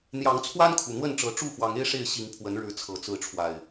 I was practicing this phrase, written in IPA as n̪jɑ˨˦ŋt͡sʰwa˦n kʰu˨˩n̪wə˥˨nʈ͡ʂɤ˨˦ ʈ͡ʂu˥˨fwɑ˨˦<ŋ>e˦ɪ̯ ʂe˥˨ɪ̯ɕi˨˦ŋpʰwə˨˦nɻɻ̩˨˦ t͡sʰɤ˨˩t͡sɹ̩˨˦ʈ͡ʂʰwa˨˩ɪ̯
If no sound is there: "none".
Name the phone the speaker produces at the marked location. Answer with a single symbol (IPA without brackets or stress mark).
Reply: ŋ